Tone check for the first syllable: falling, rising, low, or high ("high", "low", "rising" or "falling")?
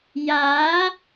rising